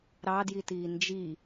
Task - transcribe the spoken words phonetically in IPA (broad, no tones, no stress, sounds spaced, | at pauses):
ɾ ɑ d j i t iː n d͡ʒ i